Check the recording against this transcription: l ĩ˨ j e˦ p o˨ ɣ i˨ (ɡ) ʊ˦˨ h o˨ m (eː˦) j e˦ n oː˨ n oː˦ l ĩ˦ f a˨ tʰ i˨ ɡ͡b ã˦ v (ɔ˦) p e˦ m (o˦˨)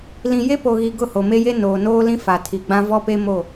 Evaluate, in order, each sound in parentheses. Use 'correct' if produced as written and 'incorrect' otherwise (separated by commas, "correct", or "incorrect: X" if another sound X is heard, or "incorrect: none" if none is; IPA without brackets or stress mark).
correct, incorrect: e˦, correct, correct